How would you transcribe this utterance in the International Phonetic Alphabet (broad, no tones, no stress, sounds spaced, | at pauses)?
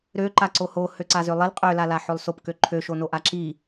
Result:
ɾ ø ǃ a ǀ o h o h ø ǀ a z ø lˠ i l qʼ ø l a l a ħ ø lˠ s o p k ø ǃʰ ø ʃ o n o ʔ a ǁ i